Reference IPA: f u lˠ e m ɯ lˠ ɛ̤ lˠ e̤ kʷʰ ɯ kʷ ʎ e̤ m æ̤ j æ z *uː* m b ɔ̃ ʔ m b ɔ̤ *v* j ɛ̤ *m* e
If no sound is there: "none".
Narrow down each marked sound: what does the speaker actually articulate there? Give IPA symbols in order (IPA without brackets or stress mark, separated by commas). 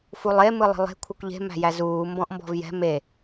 uː, v, m